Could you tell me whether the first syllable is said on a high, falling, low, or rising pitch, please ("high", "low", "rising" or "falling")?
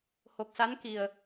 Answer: low